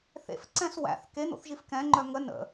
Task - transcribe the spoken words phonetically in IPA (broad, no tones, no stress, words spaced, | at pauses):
θḛfǀɛ̃s wæ̰θ ken̪o̰θʒif kɛ̃ŋ͡ǃœ ŋə nə̰